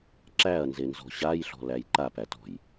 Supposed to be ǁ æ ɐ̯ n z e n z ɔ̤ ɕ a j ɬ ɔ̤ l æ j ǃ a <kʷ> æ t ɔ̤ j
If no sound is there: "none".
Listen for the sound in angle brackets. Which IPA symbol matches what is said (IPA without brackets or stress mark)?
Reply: p